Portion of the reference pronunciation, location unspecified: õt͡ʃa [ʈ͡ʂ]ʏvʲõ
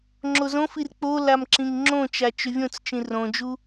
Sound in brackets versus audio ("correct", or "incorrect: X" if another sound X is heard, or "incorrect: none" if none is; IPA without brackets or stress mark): incorrect: t͡ʃ